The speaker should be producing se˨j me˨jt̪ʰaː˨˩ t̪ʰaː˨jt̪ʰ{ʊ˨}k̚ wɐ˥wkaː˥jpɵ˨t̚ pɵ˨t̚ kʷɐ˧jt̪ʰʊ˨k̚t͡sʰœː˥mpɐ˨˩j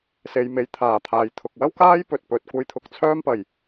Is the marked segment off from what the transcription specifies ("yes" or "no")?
no